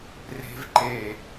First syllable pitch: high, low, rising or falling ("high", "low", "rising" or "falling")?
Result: high